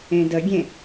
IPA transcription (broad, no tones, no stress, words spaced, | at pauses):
ẽdəɡʲẽ